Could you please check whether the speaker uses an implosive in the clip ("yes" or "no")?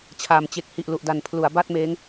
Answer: no